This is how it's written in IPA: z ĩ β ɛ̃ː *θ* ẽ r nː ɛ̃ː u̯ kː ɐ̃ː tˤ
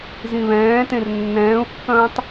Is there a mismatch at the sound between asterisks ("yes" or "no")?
yes